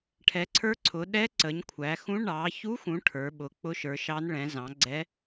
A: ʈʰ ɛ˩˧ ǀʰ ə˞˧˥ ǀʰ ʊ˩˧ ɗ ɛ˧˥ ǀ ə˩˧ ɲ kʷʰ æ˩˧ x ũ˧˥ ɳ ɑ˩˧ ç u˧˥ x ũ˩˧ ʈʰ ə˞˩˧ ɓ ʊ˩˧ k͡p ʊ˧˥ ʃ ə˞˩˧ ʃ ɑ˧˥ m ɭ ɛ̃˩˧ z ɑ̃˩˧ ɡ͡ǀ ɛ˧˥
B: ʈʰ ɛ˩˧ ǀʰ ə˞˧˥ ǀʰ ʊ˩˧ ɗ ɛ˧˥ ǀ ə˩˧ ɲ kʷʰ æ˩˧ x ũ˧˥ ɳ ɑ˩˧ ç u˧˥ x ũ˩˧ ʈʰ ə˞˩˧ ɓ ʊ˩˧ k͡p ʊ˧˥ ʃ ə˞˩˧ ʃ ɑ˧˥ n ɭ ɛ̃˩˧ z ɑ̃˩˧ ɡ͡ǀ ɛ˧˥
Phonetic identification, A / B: B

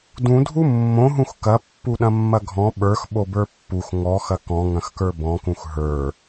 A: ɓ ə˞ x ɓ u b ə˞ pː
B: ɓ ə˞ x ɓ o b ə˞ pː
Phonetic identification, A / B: B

